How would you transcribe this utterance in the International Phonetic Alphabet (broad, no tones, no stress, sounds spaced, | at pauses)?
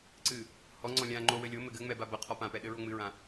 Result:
ǀ ɨ | h ɔ ŋ͡ǀ ɔ̃ lʲ ã ŋ͡ǃ o w ɘ lʲ o m ɘ ɡ ɘ ŋ͡m ɛ b a b ɐ qʰ ɔ p ã p ɛ ɗ ɘ ɹ o ŋ͡m ɨ ɹ ã